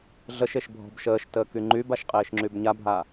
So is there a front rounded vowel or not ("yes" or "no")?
yes